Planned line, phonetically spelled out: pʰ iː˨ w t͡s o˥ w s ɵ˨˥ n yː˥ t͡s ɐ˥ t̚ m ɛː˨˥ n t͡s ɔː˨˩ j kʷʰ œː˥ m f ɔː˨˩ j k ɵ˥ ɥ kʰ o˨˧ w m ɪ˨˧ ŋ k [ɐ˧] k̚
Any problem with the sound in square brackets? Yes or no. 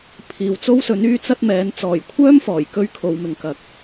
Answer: yes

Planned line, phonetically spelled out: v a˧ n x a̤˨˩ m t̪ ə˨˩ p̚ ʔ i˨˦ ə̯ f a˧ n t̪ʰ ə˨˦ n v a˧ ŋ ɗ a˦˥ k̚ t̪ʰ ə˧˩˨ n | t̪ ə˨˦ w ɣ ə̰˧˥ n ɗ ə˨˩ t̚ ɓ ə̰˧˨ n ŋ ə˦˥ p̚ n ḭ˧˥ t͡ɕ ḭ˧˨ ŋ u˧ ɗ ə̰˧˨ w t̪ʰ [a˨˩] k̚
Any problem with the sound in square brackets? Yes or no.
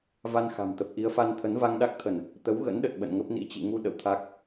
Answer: yes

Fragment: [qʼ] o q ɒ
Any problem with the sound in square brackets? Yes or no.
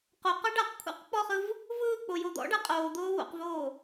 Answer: yes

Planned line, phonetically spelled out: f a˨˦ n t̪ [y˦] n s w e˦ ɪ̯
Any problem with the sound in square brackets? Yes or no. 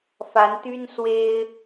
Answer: no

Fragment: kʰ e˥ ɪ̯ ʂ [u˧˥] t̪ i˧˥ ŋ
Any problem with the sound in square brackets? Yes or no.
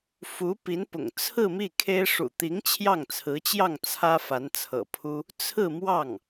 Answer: yes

